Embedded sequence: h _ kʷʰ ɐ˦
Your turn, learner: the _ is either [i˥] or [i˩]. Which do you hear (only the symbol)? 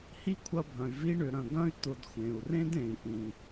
i˥